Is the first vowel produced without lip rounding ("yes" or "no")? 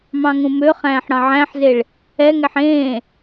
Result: yes